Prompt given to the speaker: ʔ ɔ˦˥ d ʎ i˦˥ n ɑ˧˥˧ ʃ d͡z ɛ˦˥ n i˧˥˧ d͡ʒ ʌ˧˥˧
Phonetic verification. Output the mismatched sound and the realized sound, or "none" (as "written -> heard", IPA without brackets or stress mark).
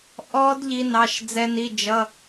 none